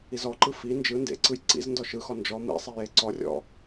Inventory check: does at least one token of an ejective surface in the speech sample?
no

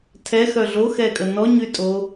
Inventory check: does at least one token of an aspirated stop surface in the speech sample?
yes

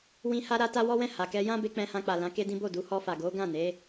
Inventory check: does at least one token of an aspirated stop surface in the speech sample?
no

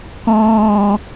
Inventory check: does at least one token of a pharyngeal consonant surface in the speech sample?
no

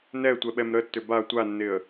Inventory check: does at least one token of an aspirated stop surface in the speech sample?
no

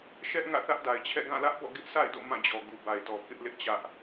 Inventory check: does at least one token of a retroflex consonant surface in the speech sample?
no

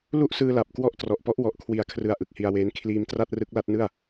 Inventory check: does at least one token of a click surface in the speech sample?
no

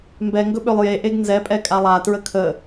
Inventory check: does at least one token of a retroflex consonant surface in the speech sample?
no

